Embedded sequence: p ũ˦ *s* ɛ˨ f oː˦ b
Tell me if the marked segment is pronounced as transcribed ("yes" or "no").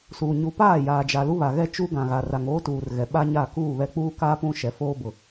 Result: no